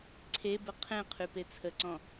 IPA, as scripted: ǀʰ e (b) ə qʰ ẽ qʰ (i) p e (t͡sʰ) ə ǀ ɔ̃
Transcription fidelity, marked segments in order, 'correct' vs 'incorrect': correct, incorrect: y, correct

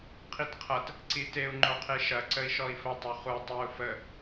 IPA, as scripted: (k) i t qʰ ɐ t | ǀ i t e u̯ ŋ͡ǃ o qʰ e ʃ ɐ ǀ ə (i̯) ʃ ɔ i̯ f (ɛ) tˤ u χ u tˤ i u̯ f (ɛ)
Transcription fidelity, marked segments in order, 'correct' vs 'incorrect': incorrect: qʰ, correct, incorrect: ə, incorrect: ə

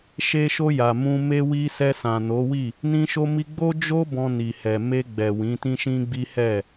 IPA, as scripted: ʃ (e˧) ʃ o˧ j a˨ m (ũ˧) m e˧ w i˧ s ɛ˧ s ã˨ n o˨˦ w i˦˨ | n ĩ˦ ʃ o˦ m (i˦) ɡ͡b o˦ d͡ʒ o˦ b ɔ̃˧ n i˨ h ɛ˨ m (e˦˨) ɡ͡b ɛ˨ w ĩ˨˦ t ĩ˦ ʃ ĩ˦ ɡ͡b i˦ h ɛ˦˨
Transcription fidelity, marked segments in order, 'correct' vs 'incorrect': correct, correct, correct, incorrect: e˧

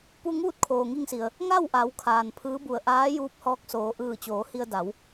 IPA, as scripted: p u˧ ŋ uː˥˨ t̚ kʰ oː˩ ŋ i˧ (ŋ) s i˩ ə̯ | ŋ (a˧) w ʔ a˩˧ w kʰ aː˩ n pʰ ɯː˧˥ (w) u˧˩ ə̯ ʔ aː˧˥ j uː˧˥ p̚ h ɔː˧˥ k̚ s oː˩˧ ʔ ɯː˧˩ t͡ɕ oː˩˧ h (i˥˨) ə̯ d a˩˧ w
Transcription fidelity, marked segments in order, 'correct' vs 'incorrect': correct, incorrect: a˥˨, incorrect: b, incorrect: i˧

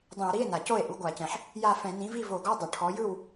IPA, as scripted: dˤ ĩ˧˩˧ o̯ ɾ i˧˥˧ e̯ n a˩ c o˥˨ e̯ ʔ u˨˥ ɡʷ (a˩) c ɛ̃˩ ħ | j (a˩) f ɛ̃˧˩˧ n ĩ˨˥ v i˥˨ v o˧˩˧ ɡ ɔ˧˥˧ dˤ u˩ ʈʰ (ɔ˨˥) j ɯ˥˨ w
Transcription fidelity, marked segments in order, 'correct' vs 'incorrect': incorrect: a˧˩˧, incorrect: a˥˨, correct

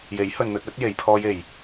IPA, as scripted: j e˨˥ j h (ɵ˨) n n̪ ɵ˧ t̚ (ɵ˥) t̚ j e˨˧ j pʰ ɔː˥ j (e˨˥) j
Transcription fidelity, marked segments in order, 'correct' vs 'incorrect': correct, incorrect: ɵ˨˥, incorrect: e˧

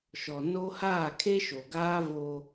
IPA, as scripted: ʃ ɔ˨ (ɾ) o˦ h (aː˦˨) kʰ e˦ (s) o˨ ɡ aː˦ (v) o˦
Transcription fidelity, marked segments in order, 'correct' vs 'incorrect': incorrect: n, correct, incorrect: ʃ, correct

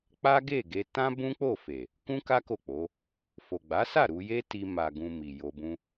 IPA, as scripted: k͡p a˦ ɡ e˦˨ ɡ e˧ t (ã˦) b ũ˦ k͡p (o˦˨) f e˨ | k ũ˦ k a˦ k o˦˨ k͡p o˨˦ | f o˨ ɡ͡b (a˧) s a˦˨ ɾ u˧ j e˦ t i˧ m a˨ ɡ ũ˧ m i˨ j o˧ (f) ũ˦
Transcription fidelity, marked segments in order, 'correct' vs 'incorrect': correct, correct, incorrect: a˨˦, incorrect: b

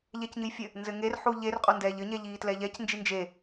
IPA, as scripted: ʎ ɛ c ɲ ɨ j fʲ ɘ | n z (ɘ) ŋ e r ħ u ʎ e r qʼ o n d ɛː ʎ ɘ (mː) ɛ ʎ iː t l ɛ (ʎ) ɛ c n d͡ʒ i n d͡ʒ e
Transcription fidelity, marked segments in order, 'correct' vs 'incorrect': correct, incorrect: ɲ, correct

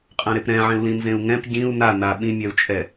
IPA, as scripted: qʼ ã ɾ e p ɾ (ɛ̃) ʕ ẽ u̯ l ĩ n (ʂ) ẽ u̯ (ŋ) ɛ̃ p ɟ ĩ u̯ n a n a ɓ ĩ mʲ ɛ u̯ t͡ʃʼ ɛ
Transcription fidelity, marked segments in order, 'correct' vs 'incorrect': correct, incorrect: z, correct

